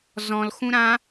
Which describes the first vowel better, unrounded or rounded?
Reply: rounded